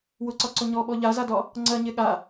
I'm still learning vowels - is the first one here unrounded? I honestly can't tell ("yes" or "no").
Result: no